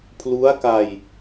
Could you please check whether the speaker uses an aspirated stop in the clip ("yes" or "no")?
yes